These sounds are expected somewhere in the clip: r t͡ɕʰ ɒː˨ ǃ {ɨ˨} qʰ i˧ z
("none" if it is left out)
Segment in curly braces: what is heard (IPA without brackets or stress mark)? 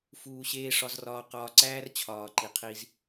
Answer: i˨